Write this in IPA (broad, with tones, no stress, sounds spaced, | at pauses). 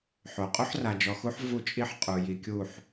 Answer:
ħ o˨ qʼ u˦ ħ r a˨ d͡ʒ ɔ˨ x u˦ ħ v u˦ t͡ʃʼ i˦ ħ qʼ u˨ j i˨ kʲ u˦˨ ħ